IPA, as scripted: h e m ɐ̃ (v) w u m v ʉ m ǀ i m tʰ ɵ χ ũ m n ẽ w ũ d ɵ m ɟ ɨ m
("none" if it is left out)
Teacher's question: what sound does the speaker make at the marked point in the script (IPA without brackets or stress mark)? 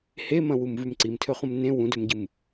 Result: none